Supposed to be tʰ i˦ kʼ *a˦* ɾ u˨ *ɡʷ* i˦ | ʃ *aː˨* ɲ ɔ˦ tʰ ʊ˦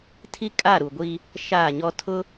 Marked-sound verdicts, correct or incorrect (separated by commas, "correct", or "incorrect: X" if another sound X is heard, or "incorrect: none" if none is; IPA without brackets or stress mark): incorrect: a˦˨, correct, incorrect: aː˦˨